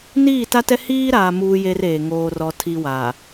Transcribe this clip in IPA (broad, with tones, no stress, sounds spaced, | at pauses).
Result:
n iː˦˨ t a˦ t ɛ˦ h iː˦ ɾ aː˨ m uː˦ j e˦ r eː˨ ŋ oː˦ r ɔ˦ tʰ i˦ w aː˨